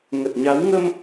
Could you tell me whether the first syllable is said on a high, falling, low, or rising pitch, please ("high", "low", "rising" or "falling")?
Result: low